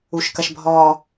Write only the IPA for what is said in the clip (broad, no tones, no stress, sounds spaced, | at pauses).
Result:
u ʃ k ɐ ʃ bʱ ɔ